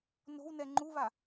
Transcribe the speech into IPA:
n o̤ w n ɛ ŋ͡ǃ u β a

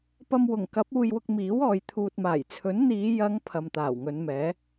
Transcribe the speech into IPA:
p ɐ˧ m w ʊ˨˩ ŋ k ɐ˨˥ p̚ uː˧ j w ʊ˧ k̚ m iː˨˥ w ɔː˨ j t̪ʰ uː˨ t̚ m aː˨˩ j t͡sʰ ɵ˨˥ n n̪ iː˨˧ j ɐ˨˧ ŋ pʰ ɐ˨ m t̪ aː˨˩ w ŋ ɵ˨˧ n m ɛː˨˥

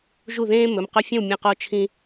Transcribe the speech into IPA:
ʒ u˥˩ ð ẽː˥ m ɵ˩˧˩ m q ɵ˥˧ fʲ ɐ̃˥˩ w mʲ ɐ̃˧˩ q o˧ t͡ʃʰ ĩ˧

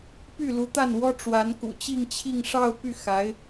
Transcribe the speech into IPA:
p y˥˩ l u˧˥ t̪ a˥˩ n w ɔ˥ ʈ͡ʂ w a˧˥ n k ṵ˨˩ t͡ɕ i˥˧ ŋ t͡ɕʰ i˥˧ ŋ ʂ ɑ˥˧ ʊ̯ p y˥˩ x a˧˥ ɪ̯

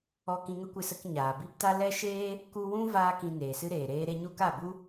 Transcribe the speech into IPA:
ɔ˧ k ĩ˧ ŋ ə˦ kʷ ɨ˧ s ə˧ k ɲ aː˨ b i˦ p t a˦ l ɛ˦ ʃ eː˦ | k u˦ w ũ˦ v aː˦ k ĩ˧ n eː˨ s ɨ˦ ɾ eː˨ ɾ eː˦ ɾ e˦ ɲ u˦ k a˦˨ b u˦

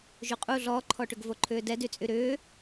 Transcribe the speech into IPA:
ʒ u qʼ u ɮ ɔː ǃʰ ɔ ʈ ʏ ɡ v o ǃʰ ʏː d ɛ d y t͡sʼ y ɾ ʏː

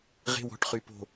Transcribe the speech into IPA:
ʁ e̤˦ w ɔ̤˨˦ ʈ χ y˨ p o̤˨

